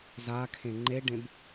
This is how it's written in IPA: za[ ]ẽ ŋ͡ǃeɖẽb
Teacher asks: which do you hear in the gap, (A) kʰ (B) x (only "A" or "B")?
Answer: A